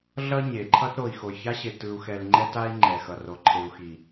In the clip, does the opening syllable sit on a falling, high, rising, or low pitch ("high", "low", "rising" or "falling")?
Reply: high